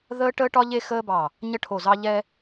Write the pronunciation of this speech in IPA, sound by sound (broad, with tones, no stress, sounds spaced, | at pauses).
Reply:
ð əː˦ ʈ əː˦ ʈ ɒ˦ ʎ e˦ x əː˦ b ɑ˧˩ | ɲ ə˦ ʈʰ o˧˩ z ɑ˦ ʎ ɛ˦